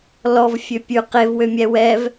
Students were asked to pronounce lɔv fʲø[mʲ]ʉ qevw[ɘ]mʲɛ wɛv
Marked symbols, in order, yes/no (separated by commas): no, no